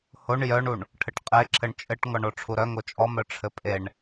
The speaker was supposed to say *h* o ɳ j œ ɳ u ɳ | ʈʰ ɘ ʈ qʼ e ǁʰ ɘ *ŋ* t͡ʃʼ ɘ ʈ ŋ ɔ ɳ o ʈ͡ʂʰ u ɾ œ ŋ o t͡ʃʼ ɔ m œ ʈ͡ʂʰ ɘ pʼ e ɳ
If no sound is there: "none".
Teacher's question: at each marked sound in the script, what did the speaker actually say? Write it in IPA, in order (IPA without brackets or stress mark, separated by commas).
h, ɳ